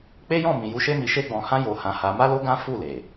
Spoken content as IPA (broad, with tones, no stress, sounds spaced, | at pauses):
k͡p e˦ j ɔ̃˦˨ m ĩ˨ j u˧ ʃ e˦ m i˧ ʃ e˦ ɡ͡b ɔ̃˧ h ã˦ j o˧ h ã˧ h a˧ m a˦ l o˦ ɡ ã˦ f u˦˨ l e˨